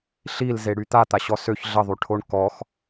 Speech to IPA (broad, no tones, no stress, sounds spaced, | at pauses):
ɬ i l z e ɽ y t̪ a t̪ a ɕ ɔ s ø ç ɮ ə ðˤ y ʈʰ o ɳ k ɔ x